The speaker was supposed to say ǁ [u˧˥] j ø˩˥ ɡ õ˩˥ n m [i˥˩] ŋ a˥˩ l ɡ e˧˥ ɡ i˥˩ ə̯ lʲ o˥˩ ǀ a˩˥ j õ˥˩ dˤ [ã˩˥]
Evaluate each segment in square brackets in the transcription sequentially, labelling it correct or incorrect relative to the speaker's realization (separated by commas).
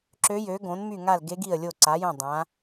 incorrect, incorrect, correct